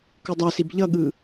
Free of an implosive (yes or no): no